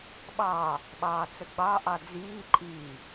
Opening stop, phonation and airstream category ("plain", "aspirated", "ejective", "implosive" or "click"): implosive